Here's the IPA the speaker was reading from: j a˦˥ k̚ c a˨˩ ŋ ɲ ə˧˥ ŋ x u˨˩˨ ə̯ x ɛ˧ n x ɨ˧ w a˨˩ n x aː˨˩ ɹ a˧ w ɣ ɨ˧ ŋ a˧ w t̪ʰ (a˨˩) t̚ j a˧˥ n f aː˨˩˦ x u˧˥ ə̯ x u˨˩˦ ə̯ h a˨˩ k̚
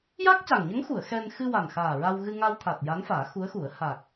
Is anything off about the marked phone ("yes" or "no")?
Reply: no